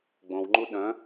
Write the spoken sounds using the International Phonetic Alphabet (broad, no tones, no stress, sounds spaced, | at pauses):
ɡ͡b õ w ŋ͡ǃ u ɗ œ̃